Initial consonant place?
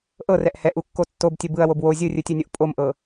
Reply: glottal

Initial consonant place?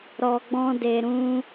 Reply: alveolar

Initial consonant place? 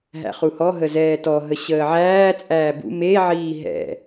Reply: glottal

